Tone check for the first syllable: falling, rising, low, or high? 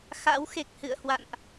rising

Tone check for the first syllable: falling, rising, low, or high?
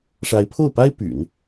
rising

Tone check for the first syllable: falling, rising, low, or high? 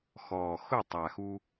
low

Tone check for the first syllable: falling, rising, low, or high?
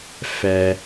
low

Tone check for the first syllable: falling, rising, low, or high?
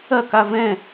falling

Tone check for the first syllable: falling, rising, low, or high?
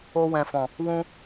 high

